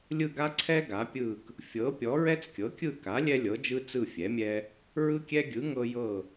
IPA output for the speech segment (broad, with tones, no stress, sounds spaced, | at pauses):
lʲ ɯ˦˨ ɡ a˦ ǀʰ ɛ˦ ɡ a˩˥ pʲ ɯ˦˨ k | fʲ ɤ˩˥ pʲ ɔ˩˥ ɹ ɛ˦ t͡s kʲ ɤ˩˥ kʲ ɯ˦˨ k a˩˥ lʲ ɛ˦ lʲ ɤ˩˥ d͡ʒ ɯ˦ t͡s ɯ˦˨ fʲ ɛ˩˥ mʲ ɛ˦ | ɹ ɯ˦ kʲ ɛ˦ ɡʲ ɯ˩˥ ŋ ɤ˦ j ɤ˦˨